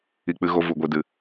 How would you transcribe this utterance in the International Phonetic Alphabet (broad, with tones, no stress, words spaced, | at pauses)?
i˧k͡pɨ˧ɣo˧ vu˨ɡʷi˨dɨ˨